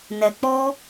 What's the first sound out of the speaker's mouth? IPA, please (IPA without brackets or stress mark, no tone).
n